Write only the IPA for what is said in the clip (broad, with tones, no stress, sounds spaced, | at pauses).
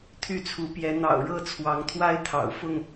t̪ʰ y˥˨ t͡sʰ u˨˦ p j ɛ˨˦ n̪ ɑ̰˨˩ ʊ̯ ɻ ɤ˥˨ t͡sʰ w ɑ˨˦ ŋ t̪ʰ w a˦ ɪ̯ t̪ʰ ɑ̰˨˩ ʊ̯ f ʊ˥˨ ŋ